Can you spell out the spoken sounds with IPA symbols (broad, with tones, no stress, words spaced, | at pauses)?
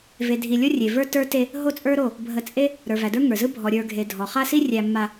ve˨dʱi˨ lʲo˦rʲe˨və˞˦ tə˞˦te˦ | ɦo˦t͡sʼə˞˦ɾo˦˨ | bʱə˨ t͡sʼe˦ | ɾə˞˨væ˨də˞˦ ŋə˞˨zɯ˦ bʱɔ˨ɾʲə˞˨ɡʱe˨ dʱɔ˨χa˦si˦ rʲæ˨ mːa˨